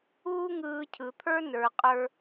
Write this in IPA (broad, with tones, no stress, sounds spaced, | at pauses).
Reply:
uː˥ ŋ ɯː˧ cʰ ɯ˩ t̪ʰ ə˞˥ n ə˞˩ qʼ ə˞˧